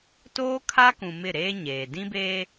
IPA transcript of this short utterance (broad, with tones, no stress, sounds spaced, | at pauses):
t oː˦ kʰ a˦ k ũ˨ m ɪ˦˨ ɾ eː˦ ɲ eː˨ d ĩ˦ b e˦